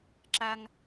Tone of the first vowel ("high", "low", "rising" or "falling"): high